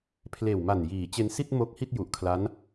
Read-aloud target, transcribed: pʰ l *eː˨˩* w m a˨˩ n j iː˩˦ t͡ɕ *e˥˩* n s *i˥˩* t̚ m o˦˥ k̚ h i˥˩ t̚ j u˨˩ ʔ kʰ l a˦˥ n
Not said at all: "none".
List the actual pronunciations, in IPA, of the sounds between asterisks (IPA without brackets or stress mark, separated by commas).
eː˨˩, e˧, i˥˩